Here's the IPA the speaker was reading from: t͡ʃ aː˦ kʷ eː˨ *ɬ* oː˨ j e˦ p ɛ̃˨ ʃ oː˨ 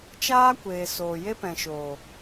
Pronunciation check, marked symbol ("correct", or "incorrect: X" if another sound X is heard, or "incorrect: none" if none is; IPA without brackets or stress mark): incorrect: s